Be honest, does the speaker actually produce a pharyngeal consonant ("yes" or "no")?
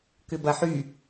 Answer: yes